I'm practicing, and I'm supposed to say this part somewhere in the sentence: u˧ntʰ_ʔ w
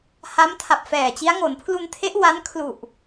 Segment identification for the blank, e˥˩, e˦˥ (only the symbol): e˦˥